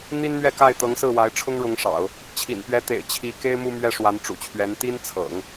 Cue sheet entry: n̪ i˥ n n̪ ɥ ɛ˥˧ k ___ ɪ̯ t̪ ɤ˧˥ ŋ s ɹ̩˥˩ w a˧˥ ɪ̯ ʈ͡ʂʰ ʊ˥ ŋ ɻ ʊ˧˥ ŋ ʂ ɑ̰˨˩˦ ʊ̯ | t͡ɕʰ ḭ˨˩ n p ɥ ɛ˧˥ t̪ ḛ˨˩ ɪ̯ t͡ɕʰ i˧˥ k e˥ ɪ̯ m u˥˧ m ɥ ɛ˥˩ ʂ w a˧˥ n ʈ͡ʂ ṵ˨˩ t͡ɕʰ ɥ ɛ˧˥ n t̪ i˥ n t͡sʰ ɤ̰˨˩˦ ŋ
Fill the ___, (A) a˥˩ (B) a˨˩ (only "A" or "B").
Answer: A